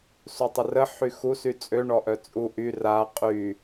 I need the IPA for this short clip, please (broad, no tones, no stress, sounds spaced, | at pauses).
s u tˤ ə r ə ħ y x u s y t͡sʼ ø ɳ ɔ ʔ œ t͡sʼ u ʔ y r a qʼ y